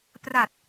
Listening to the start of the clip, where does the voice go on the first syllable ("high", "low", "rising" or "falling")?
low